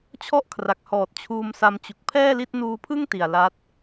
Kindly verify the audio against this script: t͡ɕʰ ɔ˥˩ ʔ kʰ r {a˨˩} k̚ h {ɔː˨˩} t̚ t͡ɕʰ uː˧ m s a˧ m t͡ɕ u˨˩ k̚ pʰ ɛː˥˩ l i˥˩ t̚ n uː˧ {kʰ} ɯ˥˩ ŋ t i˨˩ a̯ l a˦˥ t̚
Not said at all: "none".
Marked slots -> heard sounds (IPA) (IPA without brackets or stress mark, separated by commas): a˨˩, ɔː˨˩, pʰ